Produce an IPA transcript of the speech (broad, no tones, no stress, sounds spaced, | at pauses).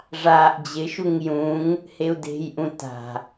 ʐ aː ʔ d͡ʑ ɪ ʃ u ŋ j ũ ŋ | h e u̯ d e̤ j ʔ ũ t a̤